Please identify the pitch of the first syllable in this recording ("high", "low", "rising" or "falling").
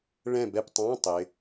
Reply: falling